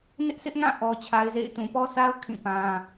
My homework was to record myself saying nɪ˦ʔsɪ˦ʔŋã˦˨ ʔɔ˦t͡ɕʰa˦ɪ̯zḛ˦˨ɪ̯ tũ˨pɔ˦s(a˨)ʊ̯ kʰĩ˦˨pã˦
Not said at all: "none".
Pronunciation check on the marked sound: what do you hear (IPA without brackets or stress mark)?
a˦